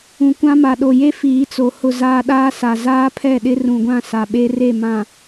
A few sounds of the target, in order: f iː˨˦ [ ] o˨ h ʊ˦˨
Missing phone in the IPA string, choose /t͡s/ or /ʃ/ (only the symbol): t͡s